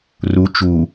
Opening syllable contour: rising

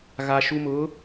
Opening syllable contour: high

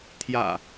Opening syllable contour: low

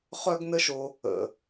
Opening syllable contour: high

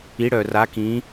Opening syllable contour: rising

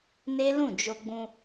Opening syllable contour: high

